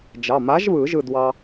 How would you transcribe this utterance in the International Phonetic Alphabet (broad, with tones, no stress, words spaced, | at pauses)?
d͡ʒɑ˩˧˩ma˨˥ʒβɯ˨˩˦ ʒɯ˥˨dwɑ˦